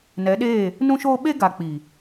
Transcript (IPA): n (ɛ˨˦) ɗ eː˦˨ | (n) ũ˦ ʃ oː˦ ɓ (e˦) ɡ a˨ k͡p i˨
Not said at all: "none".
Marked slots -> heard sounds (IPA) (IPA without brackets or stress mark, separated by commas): ɛ˨˦, n, e˦